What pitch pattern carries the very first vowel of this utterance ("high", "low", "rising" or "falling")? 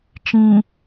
low